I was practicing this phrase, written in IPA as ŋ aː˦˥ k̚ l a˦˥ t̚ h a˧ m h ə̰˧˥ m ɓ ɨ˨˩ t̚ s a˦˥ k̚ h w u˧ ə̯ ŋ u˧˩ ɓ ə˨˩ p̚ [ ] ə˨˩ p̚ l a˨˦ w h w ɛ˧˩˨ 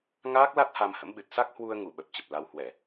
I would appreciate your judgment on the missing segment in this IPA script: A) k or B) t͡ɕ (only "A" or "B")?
B